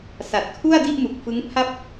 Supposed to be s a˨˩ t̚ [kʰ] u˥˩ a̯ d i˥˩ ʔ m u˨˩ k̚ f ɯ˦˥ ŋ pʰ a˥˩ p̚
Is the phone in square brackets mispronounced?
no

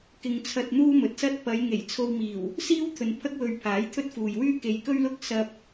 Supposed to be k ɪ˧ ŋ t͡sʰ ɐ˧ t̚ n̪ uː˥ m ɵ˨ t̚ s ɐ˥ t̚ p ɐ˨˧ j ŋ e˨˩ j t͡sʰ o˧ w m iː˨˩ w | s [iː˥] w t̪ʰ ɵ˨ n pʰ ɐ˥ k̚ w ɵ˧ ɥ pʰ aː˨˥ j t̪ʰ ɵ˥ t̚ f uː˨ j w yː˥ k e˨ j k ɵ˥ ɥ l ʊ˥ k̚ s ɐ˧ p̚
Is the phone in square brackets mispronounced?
no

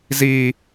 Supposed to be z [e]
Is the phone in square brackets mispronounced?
yes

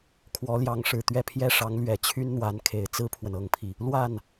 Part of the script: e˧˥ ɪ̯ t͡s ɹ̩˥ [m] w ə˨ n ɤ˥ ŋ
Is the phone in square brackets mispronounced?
yes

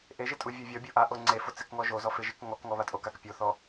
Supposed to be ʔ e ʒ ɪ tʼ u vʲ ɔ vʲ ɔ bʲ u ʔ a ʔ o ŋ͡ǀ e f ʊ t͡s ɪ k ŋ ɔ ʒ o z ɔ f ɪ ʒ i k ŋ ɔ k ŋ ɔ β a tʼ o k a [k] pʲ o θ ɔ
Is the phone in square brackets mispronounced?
no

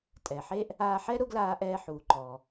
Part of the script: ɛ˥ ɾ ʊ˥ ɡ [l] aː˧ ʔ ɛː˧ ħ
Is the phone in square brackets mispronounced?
no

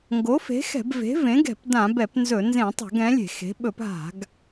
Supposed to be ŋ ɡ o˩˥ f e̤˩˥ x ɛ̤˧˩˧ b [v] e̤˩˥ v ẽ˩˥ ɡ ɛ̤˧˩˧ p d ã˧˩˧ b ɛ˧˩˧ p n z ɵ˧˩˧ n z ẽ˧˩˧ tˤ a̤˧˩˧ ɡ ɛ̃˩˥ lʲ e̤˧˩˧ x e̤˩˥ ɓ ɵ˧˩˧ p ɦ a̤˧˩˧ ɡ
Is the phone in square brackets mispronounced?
no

